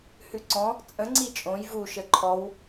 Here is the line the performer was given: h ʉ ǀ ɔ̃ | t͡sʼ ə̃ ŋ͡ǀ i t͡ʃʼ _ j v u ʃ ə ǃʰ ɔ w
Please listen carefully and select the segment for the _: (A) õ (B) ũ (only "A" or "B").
A